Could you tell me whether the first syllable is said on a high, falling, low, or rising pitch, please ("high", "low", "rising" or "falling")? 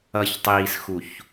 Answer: low